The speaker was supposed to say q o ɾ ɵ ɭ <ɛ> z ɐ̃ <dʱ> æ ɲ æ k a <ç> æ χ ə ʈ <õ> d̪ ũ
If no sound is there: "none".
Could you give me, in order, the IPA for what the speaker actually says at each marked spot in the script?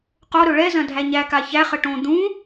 ɛ, dʱ, ç, õ

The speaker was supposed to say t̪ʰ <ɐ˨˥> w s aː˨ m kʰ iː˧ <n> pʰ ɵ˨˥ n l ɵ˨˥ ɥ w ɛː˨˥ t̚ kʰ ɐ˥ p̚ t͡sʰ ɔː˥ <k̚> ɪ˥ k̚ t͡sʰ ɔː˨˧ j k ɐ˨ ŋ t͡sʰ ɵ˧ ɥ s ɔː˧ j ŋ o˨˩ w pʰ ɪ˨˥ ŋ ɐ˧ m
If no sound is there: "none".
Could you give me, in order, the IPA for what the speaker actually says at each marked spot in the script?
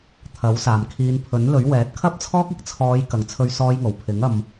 ɐ˨˥, n, k̚

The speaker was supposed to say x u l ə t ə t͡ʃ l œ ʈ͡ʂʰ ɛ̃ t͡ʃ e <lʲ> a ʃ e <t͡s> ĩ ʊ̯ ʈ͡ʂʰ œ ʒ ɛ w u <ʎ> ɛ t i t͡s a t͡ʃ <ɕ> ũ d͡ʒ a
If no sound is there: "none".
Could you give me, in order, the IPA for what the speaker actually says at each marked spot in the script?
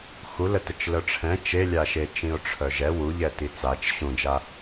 lʲ, t͡ʃ, ʎ, ɕ

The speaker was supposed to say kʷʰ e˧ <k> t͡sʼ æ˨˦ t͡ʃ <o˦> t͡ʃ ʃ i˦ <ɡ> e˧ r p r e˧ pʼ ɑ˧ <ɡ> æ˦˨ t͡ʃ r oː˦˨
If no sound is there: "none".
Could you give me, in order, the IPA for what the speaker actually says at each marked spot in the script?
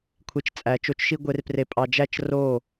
t͡ʃ, o˧, ɡʷ, d͡ʒ

